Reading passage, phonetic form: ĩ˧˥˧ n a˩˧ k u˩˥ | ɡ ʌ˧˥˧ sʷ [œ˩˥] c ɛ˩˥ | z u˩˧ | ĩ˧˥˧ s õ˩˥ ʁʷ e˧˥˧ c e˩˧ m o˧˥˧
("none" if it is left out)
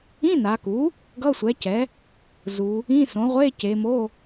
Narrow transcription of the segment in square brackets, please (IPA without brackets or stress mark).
ɛ˩˥